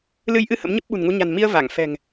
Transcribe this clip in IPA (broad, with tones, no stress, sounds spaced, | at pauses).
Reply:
l ɨ˧ j ʔ ɨ˧ h ə̰˧˥ m ɲ ə˦˥ p̚ ɓ ṳ˨˩ n ŋ u˧ ɲ a̤˨˩ n m i˧ ə̯ v a˧˩ ŋ f ɛ̤˨˩ ŋ